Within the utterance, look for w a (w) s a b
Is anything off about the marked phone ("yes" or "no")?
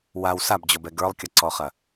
no